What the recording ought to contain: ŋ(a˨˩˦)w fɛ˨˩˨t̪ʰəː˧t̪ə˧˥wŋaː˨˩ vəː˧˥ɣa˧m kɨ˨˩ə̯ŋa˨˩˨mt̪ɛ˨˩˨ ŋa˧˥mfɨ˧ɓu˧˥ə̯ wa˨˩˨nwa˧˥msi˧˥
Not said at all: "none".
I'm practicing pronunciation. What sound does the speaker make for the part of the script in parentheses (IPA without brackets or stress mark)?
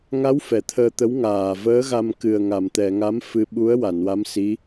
a˧˥